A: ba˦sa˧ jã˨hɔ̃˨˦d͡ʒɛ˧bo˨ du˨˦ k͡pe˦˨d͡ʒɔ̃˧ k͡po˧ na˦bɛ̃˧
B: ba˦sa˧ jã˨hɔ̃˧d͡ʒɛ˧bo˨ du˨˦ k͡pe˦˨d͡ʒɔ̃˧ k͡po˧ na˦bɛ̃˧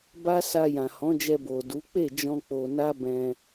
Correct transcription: A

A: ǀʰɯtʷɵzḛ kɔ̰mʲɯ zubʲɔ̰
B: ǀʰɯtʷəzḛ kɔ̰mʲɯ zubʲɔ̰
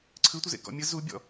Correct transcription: B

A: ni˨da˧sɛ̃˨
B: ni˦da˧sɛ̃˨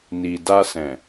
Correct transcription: A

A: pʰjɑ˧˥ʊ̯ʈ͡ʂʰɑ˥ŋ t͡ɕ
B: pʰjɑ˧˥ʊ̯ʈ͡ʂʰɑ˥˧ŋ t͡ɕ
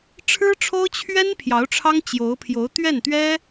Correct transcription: A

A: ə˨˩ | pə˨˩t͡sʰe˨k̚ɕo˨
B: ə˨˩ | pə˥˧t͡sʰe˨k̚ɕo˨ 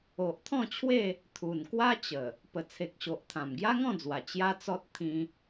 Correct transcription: A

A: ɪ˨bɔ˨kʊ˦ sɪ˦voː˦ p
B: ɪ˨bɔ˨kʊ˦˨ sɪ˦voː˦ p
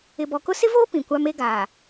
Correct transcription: A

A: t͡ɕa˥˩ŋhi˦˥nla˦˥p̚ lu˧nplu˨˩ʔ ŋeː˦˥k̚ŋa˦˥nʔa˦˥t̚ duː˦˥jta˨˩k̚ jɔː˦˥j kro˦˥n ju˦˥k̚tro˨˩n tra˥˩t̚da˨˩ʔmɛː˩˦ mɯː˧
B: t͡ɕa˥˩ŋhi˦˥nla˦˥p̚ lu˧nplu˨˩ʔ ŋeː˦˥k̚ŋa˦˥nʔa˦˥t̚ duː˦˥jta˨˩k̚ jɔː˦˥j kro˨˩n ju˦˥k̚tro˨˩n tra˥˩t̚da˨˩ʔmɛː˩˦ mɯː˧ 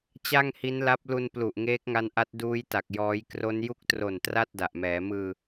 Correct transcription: A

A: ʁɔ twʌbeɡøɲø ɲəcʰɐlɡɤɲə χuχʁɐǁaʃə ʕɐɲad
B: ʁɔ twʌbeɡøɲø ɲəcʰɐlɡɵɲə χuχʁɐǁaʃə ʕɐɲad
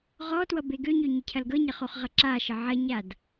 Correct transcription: A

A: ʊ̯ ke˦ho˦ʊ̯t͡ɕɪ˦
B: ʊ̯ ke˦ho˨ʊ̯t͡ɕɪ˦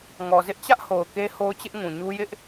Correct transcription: A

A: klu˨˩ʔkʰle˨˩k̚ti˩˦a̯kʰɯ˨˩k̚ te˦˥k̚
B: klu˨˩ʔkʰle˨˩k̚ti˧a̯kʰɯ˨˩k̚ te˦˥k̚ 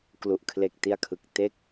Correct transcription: B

